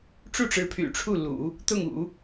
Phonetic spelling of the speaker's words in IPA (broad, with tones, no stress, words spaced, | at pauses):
ʈ͡ʂu˥˩ʈ͡ʂɻ̩˧˥ pʰy̰˨˩ʈ͡ʂʰu˥˩lṵ˨˩˦ | t̪ʊ˥˩ŋṵ˨˩˦